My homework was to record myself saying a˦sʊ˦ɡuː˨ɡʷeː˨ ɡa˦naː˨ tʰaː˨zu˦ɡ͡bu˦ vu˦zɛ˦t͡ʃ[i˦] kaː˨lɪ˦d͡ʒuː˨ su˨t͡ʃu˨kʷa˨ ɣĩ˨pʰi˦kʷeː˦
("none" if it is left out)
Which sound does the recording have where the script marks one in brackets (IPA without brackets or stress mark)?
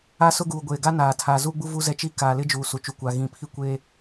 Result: i˦